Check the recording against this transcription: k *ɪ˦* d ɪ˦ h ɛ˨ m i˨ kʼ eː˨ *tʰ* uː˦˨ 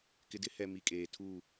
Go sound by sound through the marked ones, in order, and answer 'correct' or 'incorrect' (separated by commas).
incorrect, correct